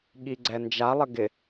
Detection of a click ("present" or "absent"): present